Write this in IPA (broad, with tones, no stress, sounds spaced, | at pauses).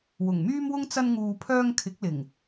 w ʊ˨˩ ŋ m yː˥ m w ʊ˥ ŋ t͡s ɐ˧ n ŋ uː˨ pʰ œː˧ ŋ kʰ ɪ˨˥ k̚ l ɪ˨˩ ŋ